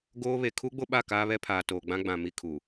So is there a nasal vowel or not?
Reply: yes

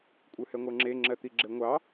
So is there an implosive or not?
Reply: no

